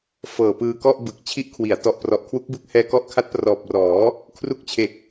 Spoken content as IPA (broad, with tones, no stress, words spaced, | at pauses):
fɤː˨˩pɯː˧kɔ˥˩ʔbɯ˨˩k̚ t͡ɕʰi˦˥ʔkʰwi˩˦a̯tɔ˨˩ʔprɔ˨˩ʔ kʰwu˦˥k̚bɯ˦˥k̚hɛː˦˥ kɔ˦˥ʔkʰa˦˥t̚prɔː˨˩p̚rɔː˩˦ | kʰru˦˥k̚t͡ɕʰe˨˩k̚